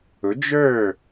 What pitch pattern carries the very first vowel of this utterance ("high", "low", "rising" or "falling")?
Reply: rising